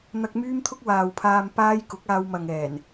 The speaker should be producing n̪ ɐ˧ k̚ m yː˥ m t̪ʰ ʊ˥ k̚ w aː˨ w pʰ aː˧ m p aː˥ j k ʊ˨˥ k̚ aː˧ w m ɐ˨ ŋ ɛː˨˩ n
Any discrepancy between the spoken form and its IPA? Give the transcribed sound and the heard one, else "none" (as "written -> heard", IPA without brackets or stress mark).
none